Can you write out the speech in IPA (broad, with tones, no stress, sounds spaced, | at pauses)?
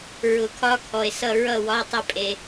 ɹ ʊ˨˩˦ kʰ ɒ˧˥˧ kʰ ɔ˨ e̯ s ʌ˥˨ ɹ ʌ˥˨ w ɒ˧˥˧ tˤ ə˥˨ pʼ e˨